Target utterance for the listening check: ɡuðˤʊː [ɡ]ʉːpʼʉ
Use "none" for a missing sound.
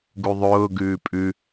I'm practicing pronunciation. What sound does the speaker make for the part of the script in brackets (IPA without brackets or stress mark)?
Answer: ɡ